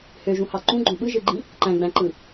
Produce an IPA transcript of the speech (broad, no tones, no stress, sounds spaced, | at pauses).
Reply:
h ø ʒ ũ h ɑ ǃ ũ ɡ͡ǃ õ ɓ ɯ ʒ ɯ ɡ͡ǃ ĩ | ǃ æ̃ ɡ͡b æ̃ ǃ ɯ